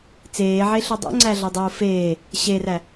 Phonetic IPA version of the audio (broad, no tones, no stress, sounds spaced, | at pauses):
t͡s eː ʕ e ɬ o dˤ o̰ ŋ͡ǀ æ ɮ ɒ dˤ oː f eː | ɕ e r æ